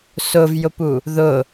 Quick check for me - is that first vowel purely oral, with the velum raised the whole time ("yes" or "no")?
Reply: yes